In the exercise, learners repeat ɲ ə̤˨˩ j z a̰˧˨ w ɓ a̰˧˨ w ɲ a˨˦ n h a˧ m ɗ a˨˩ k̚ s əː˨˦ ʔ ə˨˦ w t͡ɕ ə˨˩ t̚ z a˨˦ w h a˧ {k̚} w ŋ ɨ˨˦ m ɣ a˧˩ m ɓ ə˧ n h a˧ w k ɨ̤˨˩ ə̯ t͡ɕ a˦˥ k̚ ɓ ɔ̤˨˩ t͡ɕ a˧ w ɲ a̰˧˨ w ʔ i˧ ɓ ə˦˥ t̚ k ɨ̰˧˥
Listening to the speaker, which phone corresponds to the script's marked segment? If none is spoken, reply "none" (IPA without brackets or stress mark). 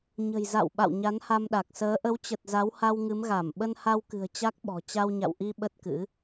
none